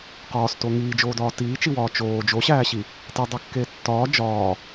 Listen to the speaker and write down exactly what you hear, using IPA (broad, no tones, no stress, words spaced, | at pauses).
qɒːsto ŋiːd͡ʒoːdɒː tiːt͡ʃiwɒː t͡ʃoː d͡ʒoɕæːɕi | tedˤikːe tːɒː d͡ʒɒː